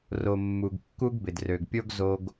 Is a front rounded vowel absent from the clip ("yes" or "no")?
no